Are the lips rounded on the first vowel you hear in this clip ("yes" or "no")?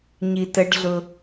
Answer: no